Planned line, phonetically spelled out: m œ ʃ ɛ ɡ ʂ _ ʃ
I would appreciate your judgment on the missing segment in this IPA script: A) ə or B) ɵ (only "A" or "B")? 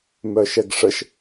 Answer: A